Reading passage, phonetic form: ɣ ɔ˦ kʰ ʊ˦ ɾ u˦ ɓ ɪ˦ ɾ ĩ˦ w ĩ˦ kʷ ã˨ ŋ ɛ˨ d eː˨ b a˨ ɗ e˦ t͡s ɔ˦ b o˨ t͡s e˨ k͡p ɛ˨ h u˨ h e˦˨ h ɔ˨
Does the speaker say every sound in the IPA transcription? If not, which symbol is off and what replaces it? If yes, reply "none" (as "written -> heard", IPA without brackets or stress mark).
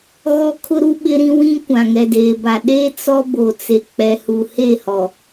none